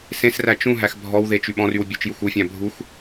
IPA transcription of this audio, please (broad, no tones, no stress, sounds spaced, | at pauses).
s ẽ s r æ t͡ʃ ũ ɦ æ x bʱ ɔ w ð e t͡ʃ y ɓ ɔ̃ r y w bʲ ɵ t͡ʃ j u x u fʲ æ̃ bʱ u x